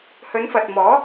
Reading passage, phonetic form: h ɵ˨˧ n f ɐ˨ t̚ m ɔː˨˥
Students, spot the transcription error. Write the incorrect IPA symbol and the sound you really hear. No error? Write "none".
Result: none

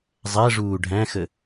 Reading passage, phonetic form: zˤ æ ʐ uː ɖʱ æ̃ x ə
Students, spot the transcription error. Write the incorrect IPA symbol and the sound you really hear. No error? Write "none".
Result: none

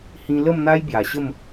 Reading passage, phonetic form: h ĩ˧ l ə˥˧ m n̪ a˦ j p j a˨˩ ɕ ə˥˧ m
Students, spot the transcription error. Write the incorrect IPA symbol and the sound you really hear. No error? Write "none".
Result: p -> b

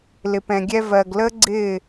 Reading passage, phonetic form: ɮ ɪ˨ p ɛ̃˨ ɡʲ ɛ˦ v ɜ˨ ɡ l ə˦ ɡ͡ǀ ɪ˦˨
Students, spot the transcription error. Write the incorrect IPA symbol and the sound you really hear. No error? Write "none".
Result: ɮ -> l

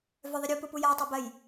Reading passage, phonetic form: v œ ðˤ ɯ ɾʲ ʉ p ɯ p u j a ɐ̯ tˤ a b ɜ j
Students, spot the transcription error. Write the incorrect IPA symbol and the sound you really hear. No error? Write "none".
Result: ʉ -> u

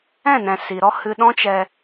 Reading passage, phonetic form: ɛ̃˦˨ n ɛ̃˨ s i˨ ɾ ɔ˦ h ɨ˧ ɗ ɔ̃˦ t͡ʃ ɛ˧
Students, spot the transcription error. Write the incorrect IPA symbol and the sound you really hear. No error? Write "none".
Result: none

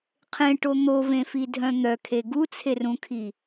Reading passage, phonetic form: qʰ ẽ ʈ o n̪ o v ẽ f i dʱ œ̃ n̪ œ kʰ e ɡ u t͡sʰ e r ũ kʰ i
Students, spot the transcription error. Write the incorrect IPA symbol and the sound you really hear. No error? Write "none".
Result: none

